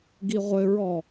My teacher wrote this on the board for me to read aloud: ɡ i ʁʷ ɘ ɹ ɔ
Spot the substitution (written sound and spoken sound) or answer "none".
none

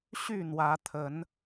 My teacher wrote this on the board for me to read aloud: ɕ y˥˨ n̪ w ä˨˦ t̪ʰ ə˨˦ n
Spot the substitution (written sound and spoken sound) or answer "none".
none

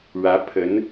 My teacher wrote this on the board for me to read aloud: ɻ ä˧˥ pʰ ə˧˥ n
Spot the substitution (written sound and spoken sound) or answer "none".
none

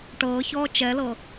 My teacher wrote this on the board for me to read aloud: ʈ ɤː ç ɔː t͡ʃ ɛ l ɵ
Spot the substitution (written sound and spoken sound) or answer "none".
ɵ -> ɤ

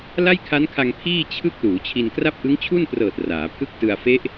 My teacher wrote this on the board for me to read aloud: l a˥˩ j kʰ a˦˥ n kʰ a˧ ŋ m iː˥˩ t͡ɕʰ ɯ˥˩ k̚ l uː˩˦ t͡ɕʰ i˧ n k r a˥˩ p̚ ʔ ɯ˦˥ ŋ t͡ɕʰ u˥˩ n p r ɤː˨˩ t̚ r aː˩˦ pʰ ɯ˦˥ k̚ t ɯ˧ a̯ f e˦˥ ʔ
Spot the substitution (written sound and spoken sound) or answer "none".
m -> pʰ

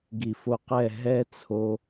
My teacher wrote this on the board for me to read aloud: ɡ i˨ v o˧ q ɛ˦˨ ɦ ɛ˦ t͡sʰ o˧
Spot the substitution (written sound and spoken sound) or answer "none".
v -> f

